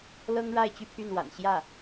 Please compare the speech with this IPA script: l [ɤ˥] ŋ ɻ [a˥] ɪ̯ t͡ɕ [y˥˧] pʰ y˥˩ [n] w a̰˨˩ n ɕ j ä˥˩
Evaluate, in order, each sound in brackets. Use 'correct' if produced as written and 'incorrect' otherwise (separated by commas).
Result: correct, incorrect, correct, correct